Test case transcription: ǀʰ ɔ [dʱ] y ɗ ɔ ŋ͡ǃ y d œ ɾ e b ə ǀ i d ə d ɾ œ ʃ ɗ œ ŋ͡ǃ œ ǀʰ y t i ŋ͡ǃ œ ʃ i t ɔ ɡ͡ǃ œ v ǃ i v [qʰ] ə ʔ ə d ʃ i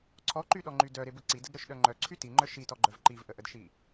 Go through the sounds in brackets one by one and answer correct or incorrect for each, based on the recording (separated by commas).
incorrect, incorrect